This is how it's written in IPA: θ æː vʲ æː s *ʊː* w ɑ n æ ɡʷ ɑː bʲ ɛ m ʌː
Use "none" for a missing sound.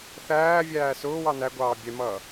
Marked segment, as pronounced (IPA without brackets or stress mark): ʊː